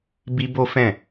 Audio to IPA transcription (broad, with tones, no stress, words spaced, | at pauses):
bi˦bo˦fɛ̃˦˨